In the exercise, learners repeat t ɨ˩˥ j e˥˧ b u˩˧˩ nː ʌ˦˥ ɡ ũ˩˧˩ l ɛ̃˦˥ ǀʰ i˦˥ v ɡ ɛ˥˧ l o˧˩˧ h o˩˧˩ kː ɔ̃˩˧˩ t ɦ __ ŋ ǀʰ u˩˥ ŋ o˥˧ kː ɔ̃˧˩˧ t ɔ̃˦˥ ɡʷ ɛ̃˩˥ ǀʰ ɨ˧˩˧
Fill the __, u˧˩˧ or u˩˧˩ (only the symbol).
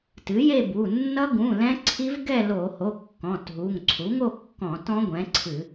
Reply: u˩˧˩